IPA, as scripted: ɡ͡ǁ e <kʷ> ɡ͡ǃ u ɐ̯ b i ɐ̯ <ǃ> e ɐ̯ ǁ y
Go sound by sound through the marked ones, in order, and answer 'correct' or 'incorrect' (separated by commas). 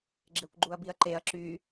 correct, correct